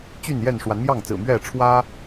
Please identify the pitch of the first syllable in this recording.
falling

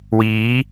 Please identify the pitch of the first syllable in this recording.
rising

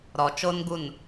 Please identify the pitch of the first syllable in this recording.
low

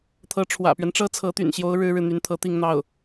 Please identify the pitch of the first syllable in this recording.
rising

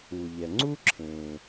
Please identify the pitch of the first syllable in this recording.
low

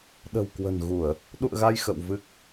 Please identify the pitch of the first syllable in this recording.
low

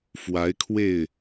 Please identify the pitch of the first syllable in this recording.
rising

